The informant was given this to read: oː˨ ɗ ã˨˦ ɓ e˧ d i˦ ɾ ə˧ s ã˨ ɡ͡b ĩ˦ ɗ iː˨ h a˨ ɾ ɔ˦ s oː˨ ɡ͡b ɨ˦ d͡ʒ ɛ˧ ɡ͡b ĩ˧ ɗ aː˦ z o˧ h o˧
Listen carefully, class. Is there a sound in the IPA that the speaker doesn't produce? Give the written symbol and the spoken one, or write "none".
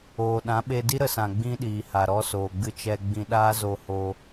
d͡ʒ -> t͡ʃ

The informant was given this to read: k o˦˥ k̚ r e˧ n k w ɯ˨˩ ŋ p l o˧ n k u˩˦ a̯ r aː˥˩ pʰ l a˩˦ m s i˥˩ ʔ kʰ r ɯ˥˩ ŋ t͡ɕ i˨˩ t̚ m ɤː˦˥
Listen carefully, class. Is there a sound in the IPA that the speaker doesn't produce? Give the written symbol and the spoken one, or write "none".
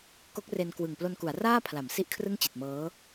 none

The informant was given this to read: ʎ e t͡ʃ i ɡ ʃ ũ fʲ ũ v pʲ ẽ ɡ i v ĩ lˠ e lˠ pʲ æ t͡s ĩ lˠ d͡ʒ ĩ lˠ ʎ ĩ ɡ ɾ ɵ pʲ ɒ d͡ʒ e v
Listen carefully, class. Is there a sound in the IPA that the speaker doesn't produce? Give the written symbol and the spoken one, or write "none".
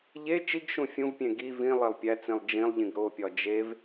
ɵ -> o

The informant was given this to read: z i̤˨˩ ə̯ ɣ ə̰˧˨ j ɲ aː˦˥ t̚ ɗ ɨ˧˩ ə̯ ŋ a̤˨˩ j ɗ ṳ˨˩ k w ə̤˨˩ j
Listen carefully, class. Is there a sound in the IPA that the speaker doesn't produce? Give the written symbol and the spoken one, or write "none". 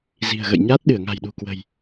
none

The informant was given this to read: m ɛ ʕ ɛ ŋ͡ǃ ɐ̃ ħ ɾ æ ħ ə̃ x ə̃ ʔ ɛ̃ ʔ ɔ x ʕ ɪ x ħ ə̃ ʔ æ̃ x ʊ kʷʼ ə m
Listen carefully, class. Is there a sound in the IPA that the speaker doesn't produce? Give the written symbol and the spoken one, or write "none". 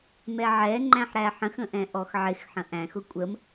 ɐ̃ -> æ̃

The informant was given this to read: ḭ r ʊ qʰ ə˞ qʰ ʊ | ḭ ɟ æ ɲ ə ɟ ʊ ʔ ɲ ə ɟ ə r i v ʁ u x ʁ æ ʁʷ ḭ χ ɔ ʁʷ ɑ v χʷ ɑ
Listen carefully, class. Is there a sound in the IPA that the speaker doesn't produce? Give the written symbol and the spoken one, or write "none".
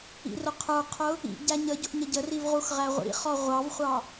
none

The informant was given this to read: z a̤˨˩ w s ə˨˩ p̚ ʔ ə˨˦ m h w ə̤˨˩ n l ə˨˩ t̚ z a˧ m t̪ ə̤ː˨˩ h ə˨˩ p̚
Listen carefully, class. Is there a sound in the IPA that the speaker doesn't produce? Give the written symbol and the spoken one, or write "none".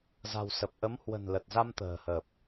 none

